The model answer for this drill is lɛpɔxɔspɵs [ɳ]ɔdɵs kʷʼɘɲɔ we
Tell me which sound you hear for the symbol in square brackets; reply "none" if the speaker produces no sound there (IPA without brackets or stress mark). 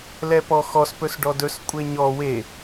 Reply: ɖ